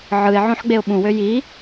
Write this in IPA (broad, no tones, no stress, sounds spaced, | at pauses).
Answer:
ʕ ɯ ɪ̯ ʕ õ ħ ɡ͡b e ʊ̯ ɓ ũ w ø j i